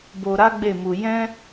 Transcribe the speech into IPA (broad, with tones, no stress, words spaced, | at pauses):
bo˧ɾa˦ɡ͡be˦˨mu˧ jɛ̃˦